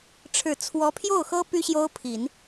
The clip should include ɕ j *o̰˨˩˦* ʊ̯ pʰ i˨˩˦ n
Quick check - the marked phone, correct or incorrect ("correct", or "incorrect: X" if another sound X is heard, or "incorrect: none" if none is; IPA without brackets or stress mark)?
incorrect: o˥